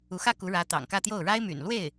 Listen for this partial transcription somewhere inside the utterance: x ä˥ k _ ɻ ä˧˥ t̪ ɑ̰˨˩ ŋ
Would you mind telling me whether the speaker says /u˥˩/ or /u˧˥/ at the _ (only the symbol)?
u˧˥